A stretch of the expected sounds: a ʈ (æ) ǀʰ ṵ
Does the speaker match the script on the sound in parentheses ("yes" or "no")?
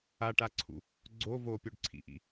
no